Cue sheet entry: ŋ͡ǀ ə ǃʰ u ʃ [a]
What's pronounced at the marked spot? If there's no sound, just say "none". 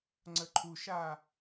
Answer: a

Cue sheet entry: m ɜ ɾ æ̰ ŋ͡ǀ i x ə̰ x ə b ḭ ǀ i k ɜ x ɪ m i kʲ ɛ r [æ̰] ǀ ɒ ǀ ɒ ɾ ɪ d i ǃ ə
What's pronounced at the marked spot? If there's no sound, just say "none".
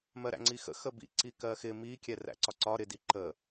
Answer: æ̰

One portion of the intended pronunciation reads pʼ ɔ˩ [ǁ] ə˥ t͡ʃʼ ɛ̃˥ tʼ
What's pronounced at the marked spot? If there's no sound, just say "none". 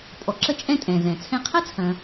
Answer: ǁ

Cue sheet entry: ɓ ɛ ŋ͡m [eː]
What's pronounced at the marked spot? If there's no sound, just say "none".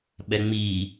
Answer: iː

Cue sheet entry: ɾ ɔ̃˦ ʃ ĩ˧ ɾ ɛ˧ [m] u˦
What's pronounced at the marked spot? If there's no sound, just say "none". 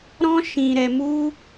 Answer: m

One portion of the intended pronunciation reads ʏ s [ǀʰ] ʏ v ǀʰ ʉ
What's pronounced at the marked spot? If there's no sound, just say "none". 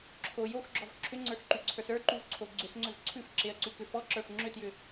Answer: ŋ͡ǀ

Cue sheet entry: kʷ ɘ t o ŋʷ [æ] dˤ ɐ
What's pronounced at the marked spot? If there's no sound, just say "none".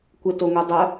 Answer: ɐ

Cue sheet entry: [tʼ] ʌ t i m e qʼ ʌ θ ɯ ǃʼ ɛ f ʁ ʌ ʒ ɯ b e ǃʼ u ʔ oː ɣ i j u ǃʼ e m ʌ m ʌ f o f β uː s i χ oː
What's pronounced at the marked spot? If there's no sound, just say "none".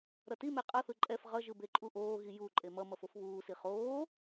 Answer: ɾ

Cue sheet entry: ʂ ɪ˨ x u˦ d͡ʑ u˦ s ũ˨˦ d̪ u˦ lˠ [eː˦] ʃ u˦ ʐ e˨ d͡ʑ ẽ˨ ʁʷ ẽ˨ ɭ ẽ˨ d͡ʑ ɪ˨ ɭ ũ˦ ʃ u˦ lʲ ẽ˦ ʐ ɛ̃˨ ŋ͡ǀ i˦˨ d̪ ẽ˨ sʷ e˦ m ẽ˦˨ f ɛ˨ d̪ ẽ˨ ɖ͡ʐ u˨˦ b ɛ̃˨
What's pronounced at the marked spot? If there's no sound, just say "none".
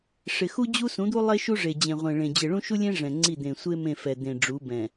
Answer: e˦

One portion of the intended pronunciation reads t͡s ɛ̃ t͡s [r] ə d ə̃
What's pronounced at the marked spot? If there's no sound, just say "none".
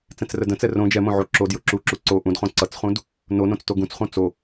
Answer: r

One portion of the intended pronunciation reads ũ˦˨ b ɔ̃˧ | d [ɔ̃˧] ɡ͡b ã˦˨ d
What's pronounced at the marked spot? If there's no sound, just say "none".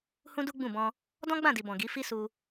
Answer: ɔ̃˦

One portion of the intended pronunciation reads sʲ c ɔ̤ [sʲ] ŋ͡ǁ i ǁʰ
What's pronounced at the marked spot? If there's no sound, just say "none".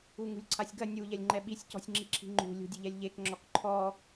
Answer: sʲ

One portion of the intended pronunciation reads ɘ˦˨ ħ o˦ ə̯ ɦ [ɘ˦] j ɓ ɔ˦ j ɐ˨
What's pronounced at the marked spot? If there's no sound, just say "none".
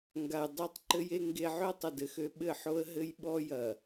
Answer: ɘ˦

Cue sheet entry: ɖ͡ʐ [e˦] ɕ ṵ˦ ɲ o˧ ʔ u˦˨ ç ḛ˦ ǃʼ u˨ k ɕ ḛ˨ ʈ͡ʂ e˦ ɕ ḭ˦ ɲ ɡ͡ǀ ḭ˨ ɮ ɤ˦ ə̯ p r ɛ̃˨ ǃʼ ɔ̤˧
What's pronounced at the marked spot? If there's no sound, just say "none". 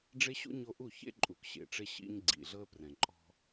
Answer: e˦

